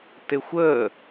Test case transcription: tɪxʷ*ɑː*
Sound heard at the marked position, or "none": əː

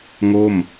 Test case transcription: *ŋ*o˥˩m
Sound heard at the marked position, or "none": ŋ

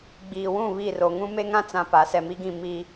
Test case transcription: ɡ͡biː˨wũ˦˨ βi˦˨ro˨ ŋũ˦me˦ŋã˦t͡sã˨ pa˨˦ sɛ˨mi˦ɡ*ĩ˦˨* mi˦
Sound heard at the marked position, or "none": ĩ˦˨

